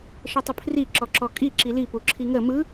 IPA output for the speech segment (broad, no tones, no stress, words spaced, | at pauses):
ʃətˤəpʰri ǁɔǁɔkʼi ǁili puǁʰiŋə mɯ